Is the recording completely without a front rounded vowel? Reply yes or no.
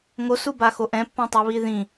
yes